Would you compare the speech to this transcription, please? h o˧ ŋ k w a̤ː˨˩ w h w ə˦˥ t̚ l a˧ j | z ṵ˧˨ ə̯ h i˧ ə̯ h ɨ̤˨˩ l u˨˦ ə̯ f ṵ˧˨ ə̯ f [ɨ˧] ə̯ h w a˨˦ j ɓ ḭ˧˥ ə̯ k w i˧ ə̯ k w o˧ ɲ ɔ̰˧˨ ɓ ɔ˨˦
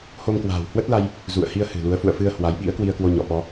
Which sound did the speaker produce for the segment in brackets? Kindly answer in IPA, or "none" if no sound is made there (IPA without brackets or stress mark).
ɨ˧